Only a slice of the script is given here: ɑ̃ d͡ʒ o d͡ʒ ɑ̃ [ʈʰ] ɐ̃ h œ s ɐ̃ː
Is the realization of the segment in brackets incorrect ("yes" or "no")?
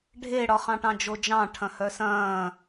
no